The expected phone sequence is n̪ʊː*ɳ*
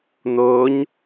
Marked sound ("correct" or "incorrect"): incorrect